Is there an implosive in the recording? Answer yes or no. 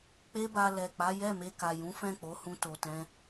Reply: no